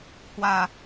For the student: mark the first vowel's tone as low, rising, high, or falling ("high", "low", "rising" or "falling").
low